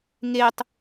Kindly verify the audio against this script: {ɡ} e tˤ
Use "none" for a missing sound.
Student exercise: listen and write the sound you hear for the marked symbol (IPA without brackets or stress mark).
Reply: ŋ